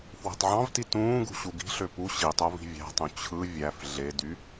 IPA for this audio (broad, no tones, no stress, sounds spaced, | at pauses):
f w e̤ tˤ ʕ ɑ̃ v t i t ũː ɡ ṳ ɕ u ɡ i̤ ɬ ø p u ɕ i tˤ o v i̤ vʲ æ̤ tˤ ũ t͡ɕʰ ɯ vʲ æ f ɮ e d y